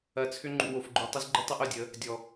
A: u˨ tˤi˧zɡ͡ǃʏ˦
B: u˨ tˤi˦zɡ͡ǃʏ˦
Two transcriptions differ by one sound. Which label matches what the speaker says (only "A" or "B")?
A